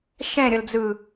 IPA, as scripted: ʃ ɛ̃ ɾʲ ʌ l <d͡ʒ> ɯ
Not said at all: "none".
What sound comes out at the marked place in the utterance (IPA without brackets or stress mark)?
d͡z